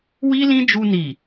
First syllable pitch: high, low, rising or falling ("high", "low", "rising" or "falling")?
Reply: high